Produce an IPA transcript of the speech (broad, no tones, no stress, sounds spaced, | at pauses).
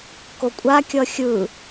k o kʷʼ a kʲ ʌ xʲ ɯ